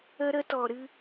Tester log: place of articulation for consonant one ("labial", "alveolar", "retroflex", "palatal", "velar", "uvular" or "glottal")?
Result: alveolar